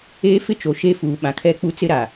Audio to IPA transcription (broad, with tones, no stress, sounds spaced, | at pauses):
eː˦ f ɪ˦ t͡ʃ o˨ ʃ e˦ f uː˨ ɓ ã˨ kʰ ɛ˦ k͡p u˦ t͡s ɪ˦ ɾ a˨